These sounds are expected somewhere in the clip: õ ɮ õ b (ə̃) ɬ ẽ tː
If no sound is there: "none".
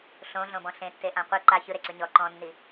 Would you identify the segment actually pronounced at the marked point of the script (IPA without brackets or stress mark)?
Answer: ɔ̃